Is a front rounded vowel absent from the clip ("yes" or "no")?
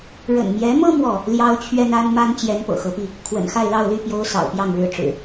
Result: no